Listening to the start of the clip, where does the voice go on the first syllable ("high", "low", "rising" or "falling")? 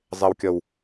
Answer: low